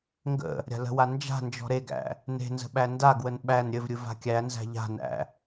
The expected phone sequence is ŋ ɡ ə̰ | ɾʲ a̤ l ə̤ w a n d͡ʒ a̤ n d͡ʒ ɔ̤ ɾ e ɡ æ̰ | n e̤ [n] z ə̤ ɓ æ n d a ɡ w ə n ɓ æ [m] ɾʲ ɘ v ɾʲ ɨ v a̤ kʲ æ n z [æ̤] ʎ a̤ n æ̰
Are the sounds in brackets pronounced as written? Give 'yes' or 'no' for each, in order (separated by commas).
yes, no, yes